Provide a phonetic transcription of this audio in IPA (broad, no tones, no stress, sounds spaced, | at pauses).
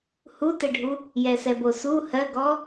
h u t ɛ ɖʱ u | j ɛ s ɛ b o s u h ɜ ɡ ɔ